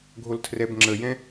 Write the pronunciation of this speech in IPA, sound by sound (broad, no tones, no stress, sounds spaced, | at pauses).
ɡʱ o l tʰ r ɛ b ŋ͡ǁ ə j ɛ̃